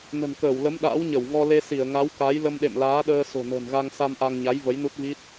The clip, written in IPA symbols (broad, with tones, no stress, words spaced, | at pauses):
nə̤˨˩nkəː˧˩wlə˨˦m ɗa̰ː˧˥wɲə˧˩wŋɔ˧ le˧si˧˩ə̯ŋa˨˦w ka˨˦j lə˧mɗḛ˧˨mlaː˨˦ɗəː˧ so̤˨˩nə̤ː˨˩nɣa˧ŋsa˧m ʔa˧ŋɲa˨˦j və˨˦jnu˦˥t̚vi˦˥t̚